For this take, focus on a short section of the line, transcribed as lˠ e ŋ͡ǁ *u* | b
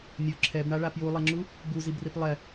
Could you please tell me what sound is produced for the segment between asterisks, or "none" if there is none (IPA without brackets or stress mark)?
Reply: u